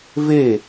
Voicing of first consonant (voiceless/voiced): voiced